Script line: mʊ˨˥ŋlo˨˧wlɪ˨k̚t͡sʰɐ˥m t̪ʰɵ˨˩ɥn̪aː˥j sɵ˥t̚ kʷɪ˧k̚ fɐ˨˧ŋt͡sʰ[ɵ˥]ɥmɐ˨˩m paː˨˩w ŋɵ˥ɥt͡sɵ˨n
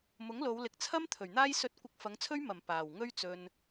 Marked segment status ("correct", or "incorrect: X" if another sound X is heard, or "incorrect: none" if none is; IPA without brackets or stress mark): correct